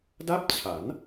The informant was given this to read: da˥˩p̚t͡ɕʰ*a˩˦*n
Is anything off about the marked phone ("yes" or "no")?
no